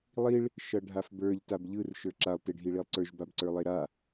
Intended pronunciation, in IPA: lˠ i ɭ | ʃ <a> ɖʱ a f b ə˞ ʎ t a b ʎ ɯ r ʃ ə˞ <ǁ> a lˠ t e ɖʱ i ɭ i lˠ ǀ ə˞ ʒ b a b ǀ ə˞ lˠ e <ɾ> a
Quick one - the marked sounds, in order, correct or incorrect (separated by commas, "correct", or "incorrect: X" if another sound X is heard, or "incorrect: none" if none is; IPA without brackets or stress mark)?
incorrect: ʌ, correct, correct